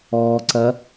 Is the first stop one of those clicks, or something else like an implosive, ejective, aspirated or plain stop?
click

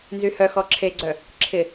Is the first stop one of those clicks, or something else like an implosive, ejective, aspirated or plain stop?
click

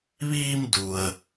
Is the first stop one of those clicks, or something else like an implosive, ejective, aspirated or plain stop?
plain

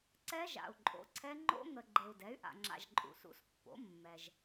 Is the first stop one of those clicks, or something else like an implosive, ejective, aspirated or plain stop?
click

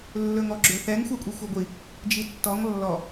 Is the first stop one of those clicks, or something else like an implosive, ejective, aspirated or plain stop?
click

